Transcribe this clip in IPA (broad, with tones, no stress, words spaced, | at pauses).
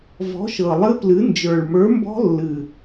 vɔ̤˨˥ʃɤ˨˩ lˠɨ˦˥plɨ˨˥nd͡ʒə˞˨˩ɭ mə˞˨˥mbɔ̤˦˥lːɨ˨˩